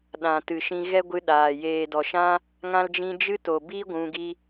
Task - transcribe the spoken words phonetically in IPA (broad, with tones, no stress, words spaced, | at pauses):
ɗã˨tɨ˨ʃĩ˧ ɣɛ˦ɡʷɨ˧ ɗaː˨ jeː˨dɔ˨ʃã˦ | ŋã˦ld͡ʒĩ˦ d͡ʒɨ˦to˨ bi˦ ɡʷũ˧ɡi˦